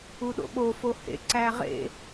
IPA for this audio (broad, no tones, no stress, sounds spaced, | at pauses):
u ɗ o̰ ɓ o f o h ḛ ǀ æ ʁ ḛ